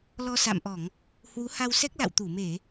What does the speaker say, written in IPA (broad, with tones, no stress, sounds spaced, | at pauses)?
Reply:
l ɔ˧ s a̰˧˨ m ʔ ɔ˧˩˨ ŋ | h w u˨˦ h a˧ w s ɛ˦˥ k̚ l a̰˧˨ w t̪ u˧˩ m e˧˩˨